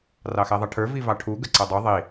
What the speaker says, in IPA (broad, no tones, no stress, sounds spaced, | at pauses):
r ɑ x ɛ ðˤ ʌ ʈʰ ə˞ v i v ɑ ʈʰ u ɡ ə ǀ ʌ dˤ u ðˤ i